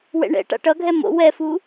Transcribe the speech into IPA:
w ɛ̰ ɳ ɛ̰ ʈ a̰ ʈ ʌ ɡʱ ɛ m o̰ w ɛ f u

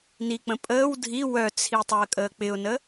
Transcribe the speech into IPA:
n i k͡p ə̃ pʼ əː w dʱ i w œ t͡sʰ i tˤ o ə̯ kʼ əː k͡p ɪ ʊ̯ n ə

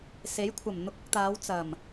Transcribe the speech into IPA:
s e˨˥ j kʷʰ ɐ˨˩ m n̪ ʊ˧ k̚ ʊ˧ k̚ t̪ aː˨˧ w t͡s ɐ˨˩ m

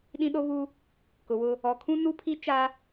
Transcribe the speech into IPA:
ɗ ĩ˦ ɗ o˦ β u˦ | k ʊ˨ w ʊ˦ | ɔ˨ kʰ ũ˦ n u˦ pʰ i˦ t͡ʃ a˦

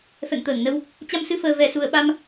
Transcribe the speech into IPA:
f ɛ̰˧˨ ŋ t̪ əː˧˩ ŋ n ə˧ w | t͡ɕ a˧ m s ɨ˧ f əː˨˩ v ɛ˨˩ s u˨˩ ə̯ ɓ a˧ m

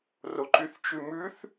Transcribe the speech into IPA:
r o ǃ y θ t͡ʃ ʉ m ʉ θ

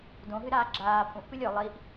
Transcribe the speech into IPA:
d õ ɦ ɨ ɾ aː ɡ͡ǁ aː pʼ ũ ʔ p ɨ lʲ ɵ lˠ i ʔ

